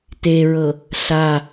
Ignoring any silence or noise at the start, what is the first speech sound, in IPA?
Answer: t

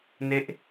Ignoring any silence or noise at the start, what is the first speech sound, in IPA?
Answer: n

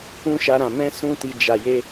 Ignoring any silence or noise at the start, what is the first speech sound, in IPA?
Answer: ũ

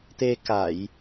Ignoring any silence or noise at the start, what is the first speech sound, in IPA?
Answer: t̪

